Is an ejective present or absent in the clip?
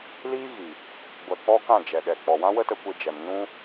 absent